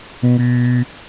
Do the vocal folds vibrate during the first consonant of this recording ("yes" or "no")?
yes